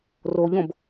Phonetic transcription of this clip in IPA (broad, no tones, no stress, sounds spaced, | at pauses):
r o ʎ õ b